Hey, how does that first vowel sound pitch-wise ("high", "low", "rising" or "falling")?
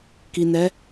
low